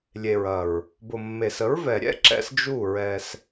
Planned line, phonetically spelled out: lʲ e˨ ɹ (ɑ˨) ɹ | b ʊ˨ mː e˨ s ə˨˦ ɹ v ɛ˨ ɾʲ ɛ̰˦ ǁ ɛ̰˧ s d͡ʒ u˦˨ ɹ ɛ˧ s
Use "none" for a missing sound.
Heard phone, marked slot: ɐ˨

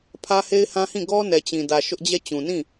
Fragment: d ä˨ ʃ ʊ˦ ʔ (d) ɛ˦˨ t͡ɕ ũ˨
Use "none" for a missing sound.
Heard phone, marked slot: d͡ʑ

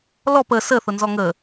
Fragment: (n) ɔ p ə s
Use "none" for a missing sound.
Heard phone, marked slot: l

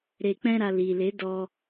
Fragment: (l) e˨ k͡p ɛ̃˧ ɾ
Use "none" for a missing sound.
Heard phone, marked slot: ɾ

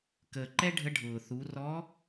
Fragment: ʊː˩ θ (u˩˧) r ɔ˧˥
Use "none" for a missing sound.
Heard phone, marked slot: u˩˧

